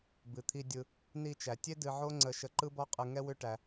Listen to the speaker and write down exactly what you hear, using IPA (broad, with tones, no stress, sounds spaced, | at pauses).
b ɨ˨ t̪ʰ i˧ dʲ ɯ˧ | n i˧ t͡ʃ æ˨ tʲ e˦ d ɨ˧ ʕ o˦ ŋ͡ǀ ə˧ ʃ ə˧ ǃ ɯ˦ b ɔ˦ qʼ ɯ˧ ŋ ɛ˦ w ʏ˦ ʈ æ˧